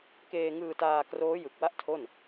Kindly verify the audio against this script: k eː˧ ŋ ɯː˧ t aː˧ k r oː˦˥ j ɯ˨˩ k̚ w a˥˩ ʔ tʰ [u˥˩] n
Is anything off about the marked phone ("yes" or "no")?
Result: yes